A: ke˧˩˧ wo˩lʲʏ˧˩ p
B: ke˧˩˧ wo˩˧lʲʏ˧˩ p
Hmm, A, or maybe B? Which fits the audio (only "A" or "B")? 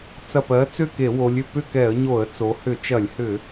B